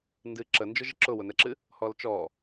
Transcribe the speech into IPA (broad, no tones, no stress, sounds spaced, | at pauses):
n d ɨ ǁ ə n d͡ʒ ʊ ʒ ɨ ǁ ʊ w ʊ n ɛ ǁ ɨ | h ɔ l t͡ʃ ɔ